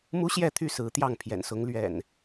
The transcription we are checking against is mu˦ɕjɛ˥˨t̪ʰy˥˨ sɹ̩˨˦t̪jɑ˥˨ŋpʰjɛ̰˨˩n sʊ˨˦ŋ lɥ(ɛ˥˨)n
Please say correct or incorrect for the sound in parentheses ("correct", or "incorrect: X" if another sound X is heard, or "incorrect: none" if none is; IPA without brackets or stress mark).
incorrect: ɛ̰˨˩